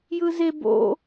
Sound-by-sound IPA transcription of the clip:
jɯzeb o̰

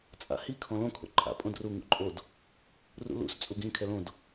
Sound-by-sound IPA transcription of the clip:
t͡sʼa̰hi kʰɔ̃lõ kʰo̰ǃʼa̰ pʼõdru ŋṵǃʼod | rṵlṵs t͡sʼuɡĩ kʰɛlõd

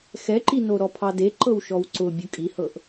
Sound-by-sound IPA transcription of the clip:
xɛǃino ɾɔpʰɑde ǃɤwʃɔwǀʊbʲʊ kʼihɤʔ

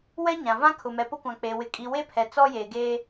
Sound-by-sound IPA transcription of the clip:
wɛ˦ɲã˨vã˦ kʰʊ˨mɛ˨pʊ˦kʷã˨ k͡pe˨ wɪ˨kʼi˨ we˦pʰɛ˨ t͡sɔ˦jeː˨ ɡeː˦

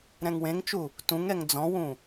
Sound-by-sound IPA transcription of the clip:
ɾɛ̃ŋwẽŋt͡ʃu | tũŋɛŋ d͡zɔ̃wũ

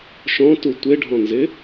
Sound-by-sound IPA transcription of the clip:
ʃɔ̃tu tʷeɖʱɔ̃nzɪ

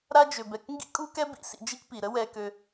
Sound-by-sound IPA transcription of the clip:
ɾa˦d͡ʒø˩bɛ˩k ŋɡḭ˥kʼu˥kɛ˥ bḭ˨sḭ˨ d͡ʒi˥kpi˩ ɾə˦wɛ˨kø˨

